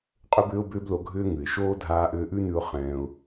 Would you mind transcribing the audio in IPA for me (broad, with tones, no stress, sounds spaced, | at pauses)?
qʼ ʏ˦ b ʏː˦ ʊ̯ b ʏː˦ b l o˧ ɡʱ ʏː˦ ŋ ʉ˨ ɪ̯ ʃ oː˦ dʱ aː˧ ʔ ʏː˧ ʔ ʉ˦ n ʉ˧ ʊ̯ χ ɛ̃ː˧ ʊ̯